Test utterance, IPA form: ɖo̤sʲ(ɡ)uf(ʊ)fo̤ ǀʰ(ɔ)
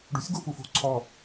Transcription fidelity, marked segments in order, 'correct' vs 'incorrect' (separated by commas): correct, incorrect, correct